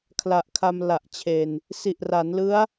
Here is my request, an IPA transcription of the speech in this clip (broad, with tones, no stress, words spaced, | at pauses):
kʰla˨˩ʔkʰa˧mla˨˩ʔt͡ɕʰe˨˩n | si˨˩ʔra˩˦nlɯ˦˥a̯